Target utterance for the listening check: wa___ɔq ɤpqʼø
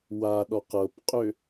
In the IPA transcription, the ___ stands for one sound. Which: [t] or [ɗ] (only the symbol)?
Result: ɗ